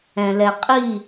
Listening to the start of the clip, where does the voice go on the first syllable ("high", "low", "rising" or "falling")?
low